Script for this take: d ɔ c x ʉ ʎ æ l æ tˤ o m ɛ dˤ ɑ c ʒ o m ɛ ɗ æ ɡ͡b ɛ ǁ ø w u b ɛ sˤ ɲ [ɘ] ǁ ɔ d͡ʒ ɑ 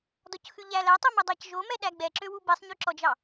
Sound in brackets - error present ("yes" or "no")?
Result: yes